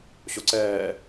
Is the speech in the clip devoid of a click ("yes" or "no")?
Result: no